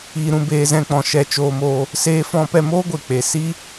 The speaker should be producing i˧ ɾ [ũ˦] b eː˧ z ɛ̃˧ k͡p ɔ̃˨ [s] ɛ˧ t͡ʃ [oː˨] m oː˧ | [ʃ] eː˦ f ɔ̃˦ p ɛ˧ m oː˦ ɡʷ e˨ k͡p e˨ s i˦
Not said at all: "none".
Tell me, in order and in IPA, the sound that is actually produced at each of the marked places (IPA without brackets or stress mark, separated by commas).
ũ˧, ʃ, oː˧, s